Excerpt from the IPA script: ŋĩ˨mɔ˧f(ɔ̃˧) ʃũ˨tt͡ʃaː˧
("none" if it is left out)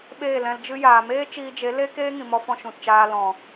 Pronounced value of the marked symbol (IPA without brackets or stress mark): ɔ̃˧